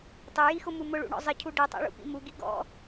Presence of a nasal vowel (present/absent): absent